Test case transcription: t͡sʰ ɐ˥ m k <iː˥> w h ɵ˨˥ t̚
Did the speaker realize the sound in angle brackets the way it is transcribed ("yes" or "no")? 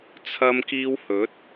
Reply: yes